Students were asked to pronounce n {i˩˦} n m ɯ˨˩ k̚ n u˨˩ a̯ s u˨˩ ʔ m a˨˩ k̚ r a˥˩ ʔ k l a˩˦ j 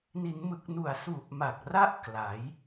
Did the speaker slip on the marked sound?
no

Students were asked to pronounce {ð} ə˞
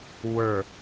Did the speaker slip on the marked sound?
yes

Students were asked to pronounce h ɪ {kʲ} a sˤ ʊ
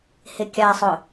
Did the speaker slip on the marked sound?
no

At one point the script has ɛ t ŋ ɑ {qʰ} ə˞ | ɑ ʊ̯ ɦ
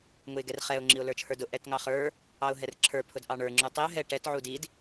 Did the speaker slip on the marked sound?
yes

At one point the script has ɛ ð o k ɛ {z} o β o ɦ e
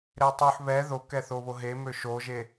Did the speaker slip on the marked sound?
yes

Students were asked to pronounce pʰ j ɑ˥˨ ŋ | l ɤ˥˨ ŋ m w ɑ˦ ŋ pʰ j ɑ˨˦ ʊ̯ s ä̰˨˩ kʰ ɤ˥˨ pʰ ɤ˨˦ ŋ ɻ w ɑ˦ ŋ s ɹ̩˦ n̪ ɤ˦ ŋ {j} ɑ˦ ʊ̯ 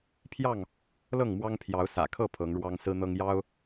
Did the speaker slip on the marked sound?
no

